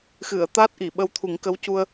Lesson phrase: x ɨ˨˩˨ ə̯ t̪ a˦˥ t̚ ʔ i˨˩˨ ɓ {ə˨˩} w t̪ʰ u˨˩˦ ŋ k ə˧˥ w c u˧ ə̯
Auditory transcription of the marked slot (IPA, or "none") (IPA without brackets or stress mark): ə˧